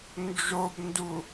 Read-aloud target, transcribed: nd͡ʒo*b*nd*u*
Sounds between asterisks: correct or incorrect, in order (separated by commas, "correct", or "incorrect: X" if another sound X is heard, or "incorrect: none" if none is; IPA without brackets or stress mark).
correct, correct